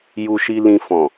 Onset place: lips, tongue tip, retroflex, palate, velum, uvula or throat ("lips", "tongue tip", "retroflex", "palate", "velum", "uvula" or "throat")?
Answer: palate